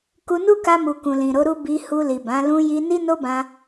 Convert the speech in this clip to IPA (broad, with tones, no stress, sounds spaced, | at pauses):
k u˧ n u˦ k a˧ m u˨ k ũ˨ l ĩ˨ ɾ o˨˦ ɾ u˦ b i˧ h u˧ l i˨ b ã˨˦ l ũ˧ j i˧ n i˦ n o˦ b ã˧